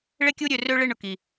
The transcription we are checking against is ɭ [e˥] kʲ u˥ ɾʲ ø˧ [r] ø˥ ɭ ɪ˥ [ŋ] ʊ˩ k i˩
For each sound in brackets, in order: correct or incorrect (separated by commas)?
correct, correct, incorrect